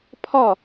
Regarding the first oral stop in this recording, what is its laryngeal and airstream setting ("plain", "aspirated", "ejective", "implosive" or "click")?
aspirated